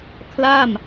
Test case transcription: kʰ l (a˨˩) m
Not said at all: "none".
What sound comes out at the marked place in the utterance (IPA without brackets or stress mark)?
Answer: a˥˩